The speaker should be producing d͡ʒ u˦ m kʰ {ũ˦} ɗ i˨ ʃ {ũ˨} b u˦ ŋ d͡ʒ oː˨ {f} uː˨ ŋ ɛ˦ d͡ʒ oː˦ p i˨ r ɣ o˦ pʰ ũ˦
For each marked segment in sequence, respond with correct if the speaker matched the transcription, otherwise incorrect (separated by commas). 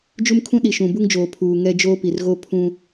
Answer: correct, correct, incorrect